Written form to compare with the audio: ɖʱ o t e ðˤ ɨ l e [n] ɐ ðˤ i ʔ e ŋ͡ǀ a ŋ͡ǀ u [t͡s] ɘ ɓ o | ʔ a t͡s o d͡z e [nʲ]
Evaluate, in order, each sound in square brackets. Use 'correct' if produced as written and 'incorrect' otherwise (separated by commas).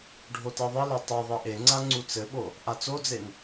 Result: incorrect, correct, incorrect